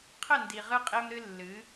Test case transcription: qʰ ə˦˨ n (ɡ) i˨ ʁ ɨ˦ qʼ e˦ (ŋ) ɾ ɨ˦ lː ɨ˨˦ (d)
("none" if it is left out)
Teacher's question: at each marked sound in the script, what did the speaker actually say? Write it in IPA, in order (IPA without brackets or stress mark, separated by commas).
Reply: d, m, none